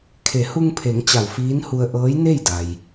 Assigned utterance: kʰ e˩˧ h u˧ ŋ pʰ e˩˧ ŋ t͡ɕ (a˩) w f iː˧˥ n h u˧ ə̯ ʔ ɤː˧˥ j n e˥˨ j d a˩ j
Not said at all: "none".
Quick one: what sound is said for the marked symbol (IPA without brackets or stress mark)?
a˧˩